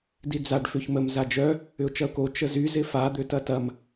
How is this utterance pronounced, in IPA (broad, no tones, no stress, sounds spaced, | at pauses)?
d i d͡z a ɖ f ʏ ç m ə m z a d͡ʒ œ | ʏ ʊ̯ t͡ʃ ɐ ʊ̯ k o t͡ʃ ə z y z ɪ f a d̪ ø t ɐ t ɐ m